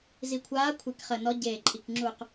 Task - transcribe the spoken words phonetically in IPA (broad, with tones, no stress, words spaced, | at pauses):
zi˨˩kʷʰaː˨˦kʷʰe˨˩k χə˨˩nɔ˨˦ɟeː˨˩ǃʼi˨˩k ŋ͡ǁu˨˩q